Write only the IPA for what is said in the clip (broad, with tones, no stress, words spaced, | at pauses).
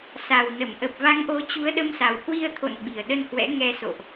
sa˨˩w nə˧˩m ʔə˨˩p̚va˨˦ŋʔo˨˦ t͡ɕu˨˦ə̯ɗə˧msa˨˩w hwi˧ə̯t̪ʰo̰˧˨n ɓi˨˩ə̯ɗə˧nhwɛ̰˧˥ ŋɛ˧so̰˧˨ʔ